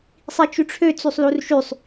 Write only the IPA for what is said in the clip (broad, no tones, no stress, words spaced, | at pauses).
sˤit͡ʃyʈ͡ʂʰø t͡sysˤlurʃysˤ